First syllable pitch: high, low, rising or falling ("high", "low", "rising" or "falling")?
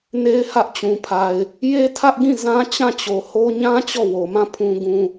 high